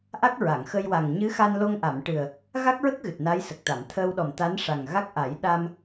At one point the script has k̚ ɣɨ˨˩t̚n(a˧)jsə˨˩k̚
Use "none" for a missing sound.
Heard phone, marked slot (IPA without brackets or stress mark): a˧˥